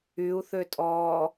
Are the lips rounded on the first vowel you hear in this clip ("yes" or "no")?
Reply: yes